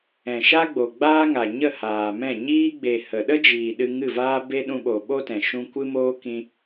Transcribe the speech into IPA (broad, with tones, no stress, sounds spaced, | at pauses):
ɛ̃˨ ʃ a˦ ɡ͡b o˨ ɡ͡b aː˦ ŋ a˨ ɲ ə˦˨ h aː˨ m ɛ̃˦˨ ɲ iː˦ ɡ͡b e˨ h ə˨ ɗ ə˦ d͡ʒ iː˨ ɗ ɨ˧ ŋ ɨ˦˨ v aː˦ b e˦ ɗ ũ˧ ɓ o˨ ɓ o˦ t ɛ̃˨ ʃ ũ˧ kʷ ɨ˦ m oː˦ k ĩ˧